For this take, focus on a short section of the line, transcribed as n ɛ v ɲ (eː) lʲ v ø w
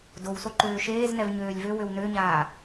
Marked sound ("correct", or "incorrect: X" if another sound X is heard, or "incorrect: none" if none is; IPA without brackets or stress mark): incorrect: øː